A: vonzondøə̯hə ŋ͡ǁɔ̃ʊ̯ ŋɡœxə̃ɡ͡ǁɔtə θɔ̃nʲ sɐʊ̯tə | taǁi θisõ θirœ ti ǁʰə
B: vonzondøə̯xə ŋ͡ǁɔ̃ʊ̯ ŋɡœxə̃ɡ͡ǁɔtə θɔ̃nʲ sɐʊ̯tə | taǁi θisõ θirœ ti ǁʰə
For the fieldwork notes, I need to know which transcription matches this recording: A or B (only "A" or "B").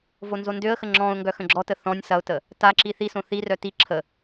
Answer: B